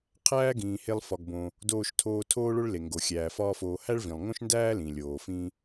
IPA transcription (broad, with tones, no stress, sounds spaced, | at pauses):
qʰ æː˥ ɡ ĩː˩ h e˧ lˠ f ɒ˩ ɡ b õ˩ | d oː˧ ʃ tʰ oː˧ tʰ oː˥ ɭ o˥ ɭ l e˩ ŋ ɡ o˩ xʲ æː˩ f ɒː˥ f oː˧ h æ˥ ɭ v ĩ˩ lˠ ŋ õ˥ ʃ n d æː˥ l ĩ˩ lʲ oː˩ f ĩ˥